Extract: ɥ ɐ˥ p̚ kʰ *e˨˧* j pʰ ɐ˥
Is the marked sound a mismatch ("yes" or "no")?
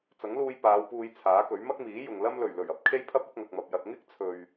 yes